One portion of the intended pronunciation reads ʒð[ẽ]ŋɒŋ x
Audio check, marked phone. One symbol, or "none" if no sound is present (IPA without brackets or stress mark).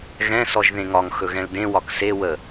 ẽ